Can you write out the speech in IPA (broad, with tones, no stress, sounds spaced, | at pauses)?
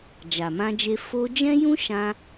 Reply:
d͡ʒ a˨ m ã˧ d͡ʒ e˧ f o˧ d͡ʒ ɛ̃˦ j ũ˦ ʃ ã˧